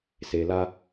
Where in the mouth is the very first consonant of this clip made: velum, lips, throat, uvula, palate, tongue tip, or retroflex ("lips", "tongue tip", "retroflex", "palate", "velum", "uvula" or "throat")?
tongue tip